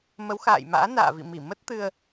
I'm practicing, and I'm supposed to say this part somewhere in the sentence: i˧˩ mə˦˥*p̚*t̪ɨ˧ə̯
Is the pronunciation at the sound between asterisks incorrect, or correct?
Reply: incorrect